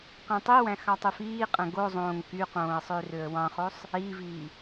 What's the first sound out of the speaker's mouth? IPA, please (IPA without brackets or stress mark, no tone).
q